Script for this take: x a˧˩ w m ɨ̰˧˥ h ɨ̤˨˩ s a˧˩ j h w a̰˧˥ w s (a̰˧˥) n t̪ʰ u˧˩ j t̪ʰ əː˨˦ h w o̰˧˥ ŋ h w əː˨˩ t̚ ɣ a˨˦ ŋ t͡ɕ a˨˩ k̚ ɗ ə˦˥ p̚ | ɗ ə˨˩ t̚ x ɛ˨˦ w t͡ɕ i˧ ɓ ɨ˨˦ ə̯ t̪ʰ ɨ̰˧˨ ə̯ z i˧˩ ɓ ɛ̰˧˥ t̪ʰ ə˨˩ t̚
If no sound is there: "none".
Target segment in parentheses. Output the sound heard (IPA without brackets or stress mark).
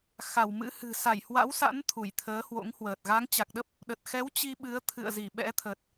a̰˧˥